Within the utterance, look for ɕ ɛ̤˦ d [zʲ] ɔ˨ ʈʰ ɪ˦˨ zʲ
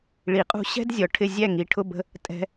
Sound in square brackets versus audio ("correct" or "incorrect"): correct